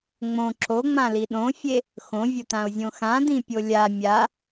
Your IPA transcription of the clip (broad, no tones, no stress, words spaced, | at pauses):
ŋ͡mõ ǁoŋ͡mãli ɗõfʲe | xõvʲʊtão̯zʲõ xãdĩpʲo lʲa mʲa